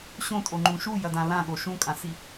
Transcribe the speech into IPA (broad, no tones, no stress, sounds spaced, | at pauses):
ɕ õ tʼ o ŋ͡ǃ ũ ʃ u j ɐ d ã l ã ɠ o ʃ ũ kʼ ã s i